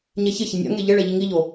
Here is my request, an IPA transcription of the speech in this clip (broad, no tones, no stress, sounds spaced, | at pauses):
ɲ ɛ ç ɪ ç ɪ nʲ a̰ ŋ e ʎ ɪ ɭ ɛ ʎ i ŋ i ʎ o